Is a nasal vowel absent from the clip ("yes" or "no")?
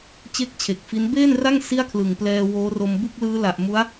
yes